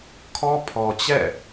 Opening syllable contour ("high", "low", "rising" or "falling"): high